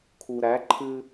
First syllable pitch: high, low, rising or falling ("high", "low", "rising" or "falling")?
low